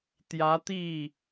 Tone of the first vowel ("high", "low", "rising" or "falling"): rising